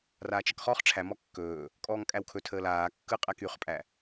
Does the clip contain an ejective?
yes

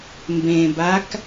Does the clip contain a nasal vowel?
yes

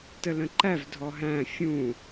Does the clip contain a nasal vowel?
yes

